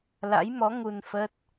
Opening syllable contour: rising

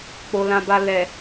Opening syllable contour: low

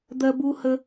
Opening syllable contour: high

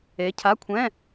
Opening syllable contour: rising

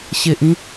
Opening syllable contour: low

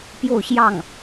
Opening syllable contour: falling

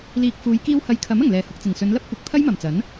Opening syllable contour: low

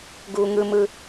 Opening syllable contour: low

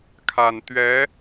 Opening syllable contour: low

